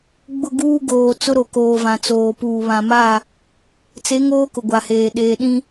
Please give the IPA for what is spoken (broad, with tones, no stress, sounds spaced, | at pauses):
ɡ͡b ʊ˦˨ ɡ uː˦ ɡ oː˨ t͡s ʊ˦ ɾ o˨ k oː˨ v ã˨ t͡s oː˨ p uː˨ β ã˨ m a˦˨ | t͡s e˨˦ ŋ oː˦ k ʊ˨ ɡʷ a˨ h eː˨ ɗ eː˨ ɗ ĩ˦